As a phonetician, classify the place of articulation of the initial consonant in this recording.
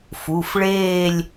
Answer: labial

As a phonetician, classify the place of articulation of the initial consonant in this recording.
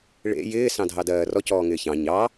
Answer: retroflex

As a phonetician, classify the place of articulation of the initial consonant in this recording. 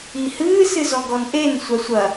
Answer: glottal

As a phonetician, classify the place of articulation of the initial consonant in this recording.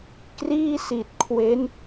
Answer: velar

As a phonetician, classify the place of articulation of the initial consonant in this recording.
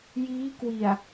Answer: palatal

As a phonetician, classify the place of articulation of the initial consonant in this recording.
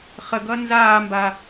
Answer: uvular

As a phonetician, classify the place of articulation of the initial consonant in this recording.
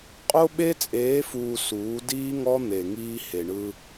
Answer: uvular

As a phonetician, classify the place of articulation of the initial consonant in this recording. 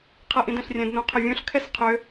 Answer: uvular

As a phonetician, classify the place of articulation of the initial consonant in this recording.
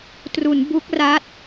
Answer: alveolar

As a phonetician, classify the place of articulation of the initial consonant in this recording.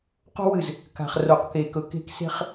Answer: uvular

